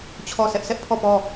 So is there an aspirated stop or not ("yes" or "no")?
yes